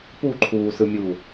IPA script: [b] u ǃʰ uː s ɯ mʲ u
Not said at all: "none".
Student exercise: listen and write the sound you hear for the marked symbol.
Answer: p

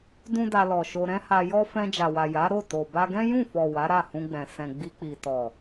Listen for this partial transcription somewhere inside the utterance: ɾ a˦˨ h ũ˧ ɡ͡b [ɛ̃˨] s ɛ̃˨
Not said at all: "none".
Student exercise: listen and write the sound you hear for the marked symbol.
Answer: ɛ̃˨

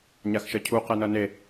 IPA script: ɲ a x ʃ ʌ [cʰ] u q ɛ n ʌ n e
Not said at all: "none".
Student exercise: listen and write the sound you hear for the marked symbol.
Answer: cʰ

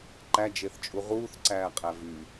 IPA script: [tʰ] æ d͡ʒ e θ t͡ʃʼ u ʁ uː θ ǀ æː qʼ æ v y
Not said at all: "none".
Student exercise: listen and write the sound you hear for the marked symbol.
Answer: ǃ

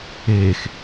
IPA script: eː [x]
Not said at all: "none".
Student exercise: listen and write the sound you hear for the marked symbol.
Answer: x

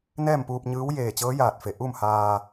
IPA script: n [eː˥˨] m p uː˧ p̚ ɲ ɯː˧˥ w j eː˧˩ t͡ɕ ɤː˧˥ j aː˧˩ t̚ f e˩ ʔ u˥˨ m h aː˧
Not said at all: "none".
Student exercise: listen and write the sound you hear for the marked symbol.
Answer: ɛː˥˨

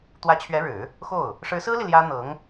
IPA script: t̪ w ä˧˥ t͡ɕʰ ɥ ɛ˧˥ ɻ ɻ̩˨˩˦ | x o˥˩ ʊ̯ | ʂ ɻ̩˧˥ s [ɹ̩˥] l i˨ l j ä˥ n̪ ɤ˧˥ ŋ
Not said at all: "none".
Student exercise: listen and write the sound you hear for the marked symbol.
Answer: ɹ̩˥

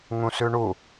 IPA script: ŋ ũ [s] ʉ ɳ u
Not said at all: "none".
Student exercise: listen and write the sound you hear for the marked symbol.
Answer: s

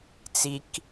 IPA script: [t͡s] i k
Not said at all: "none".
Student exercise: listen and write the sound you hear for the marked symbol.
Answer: t͡s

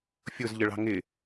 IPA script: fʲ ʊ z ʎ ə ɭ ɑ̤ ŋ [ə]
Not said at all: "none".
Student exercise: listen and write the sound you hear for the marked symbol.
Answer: ɪ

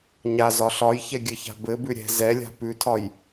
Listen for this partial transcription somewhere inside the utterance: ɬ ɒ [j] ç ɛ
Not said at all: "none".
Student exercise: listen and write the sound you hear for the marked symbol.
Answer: j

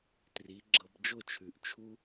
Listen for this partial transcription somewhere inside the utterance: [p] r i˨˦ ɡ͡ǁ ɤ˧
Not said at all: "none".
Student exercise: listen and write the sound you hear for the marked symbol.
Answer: t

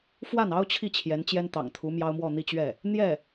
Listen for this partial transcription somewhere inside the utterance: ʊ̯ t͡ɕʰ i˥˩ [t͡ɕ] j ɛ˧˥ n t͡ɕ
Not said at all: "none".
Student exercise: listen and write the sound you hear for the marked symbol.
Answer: t͡ɕʰ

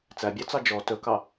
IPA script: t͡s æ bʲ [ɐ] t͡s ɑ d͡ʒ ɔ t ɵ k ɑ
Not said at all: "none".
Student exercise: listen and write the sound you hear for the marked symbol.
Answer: ɑ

